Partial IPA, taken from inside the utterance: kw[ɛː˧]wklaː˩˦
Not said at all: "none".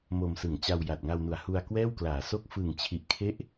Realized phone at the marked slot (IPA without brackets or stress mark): ɛː˥˩